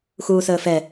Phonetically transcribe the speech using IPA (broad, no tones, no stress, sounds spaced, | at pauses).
x uː s əː f ɛ